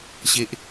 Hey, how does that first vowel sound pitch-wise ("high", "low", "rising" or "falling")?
high